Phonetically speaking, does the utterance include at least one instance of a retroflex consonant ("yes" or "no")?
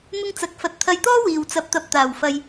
no